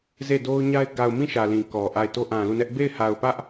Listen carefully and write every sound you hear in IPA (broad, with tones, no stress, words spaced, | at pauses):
ze˦˨do˦ʊ̯ɲa˦ɪ̯ ɡa˨ʊ̯mĩ˦˨ ʃä˨lĩ˨ kɔ˨ʔa˦˨ɪ̯ to˦ʔã˨lu˦˨nɛ˦ʔ be˦˨ɪ̯ha˨ʊ̯pä˦ʔ